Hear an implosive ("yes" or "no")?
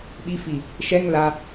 yes